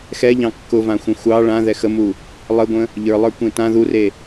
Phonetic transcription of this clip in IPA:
x ɛ ʎ ɑ̃ kː ʊ v ã xʷ ə̃ xʷ ɑ ɭ ã ð ɛ x ə m u | lˠ ə ɡʷ ə̃ | ʎ ə˞ lˠ ə˞ kʷ ẽ t ã ð u r e

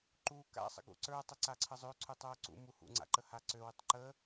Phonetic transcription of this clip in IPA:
ǃ u k a̰ sˤ ə̰ ɡ ṵ ǀ ə˞ tˤ ə ǀ a ǀʰ ə zˤ ø ǀʰ u tˤ ə˞ ʊ̯ ǀ ṵ m u h ṵ ŋ͡ǀ a̰ ǃ ə h a ǀ ø w y tˤ ǃ ə

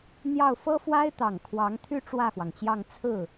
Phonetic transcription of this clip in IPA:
n̪ j ɑ˥˩ ʊ̯ f ɤ˥ f w a˥ ɪ̯ t̪ ɑ˨˩ ŋ kʰ w ɑ˧˥ ŋ t̪ʰ y˥ ʈ͡ʂ w ä˥˩ x w ɑ˩ ŋ t͡ɕ j ɑ˥˧ ŋ t͡sʰ ɹ̩˥˩

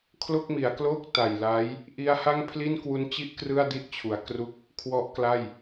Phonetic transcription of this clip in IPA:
kʰ l o˥˩ k̚ m i˩˦ a̯ k l oː˥˩ k̚ t a˨˩ j l a˦˥ j | ʔ i˦˥ a̯ h a˥˩ ŋ pʰ l i˥˩ n k w u˦˥ n t͡ɕ i˥˩ ʔ k r ɯ˥˩ a̯ d i˥˩ ʔ t͡ɕʰ u˩˦ a̯ k r u˥˩ k̚ | kʰ w ɔ˦˥ ʔ k l a˥˩ j

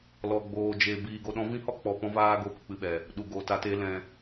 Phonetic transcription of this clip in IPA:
l ɔ˧ ɡ͡b oː˧ d͡ʒ e˧ b iː˧ ɡ o˧ ɗ ɔ̃˦ v ĩ˦ h ɔ˦ k͡p ɔ˨ p ɔ̃˧ v aː˧ ɡ o˦ p ɨ˨ k͡p ɨ˦ ɓ ɛ˨ | ɗ u˨ ɡ oː˨ t a˧ t eː˧ l ɛ̃˨

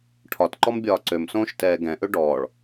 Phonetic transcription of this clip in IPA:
ʈʰ ɒ t ǃ ɔ m bʲ ɒː ǀ ø m s õː ʃ t ɛː ɡ ɛ̃ ʔ ø ɖ ɔː ɭ

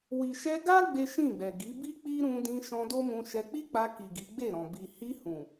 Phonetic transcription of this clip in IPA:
w i˨ ʃ ɛ˧ ɡ a˦ ɡ͡b e˦ ʃ ĩ˦˨ ɡ͡b ɛ˨ ɡ i˨˦ b i˦ k͡p i˦ ɾ ũ˧ d ĩ˧ ʃ ɔ̃˧ d o˦ m ũ˧ ʃ ɛ˧ k͡p i˦ k͡p a˧ k i˨ ɡ i˨˦ ɡ͡b e˦˨ ɾ ɔ̃˨ b i˨ h i˧ h ũ˨

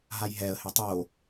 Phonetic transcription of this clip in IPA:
ɦ a j ɦ ɛ ə̯ h ɪ tˤ o

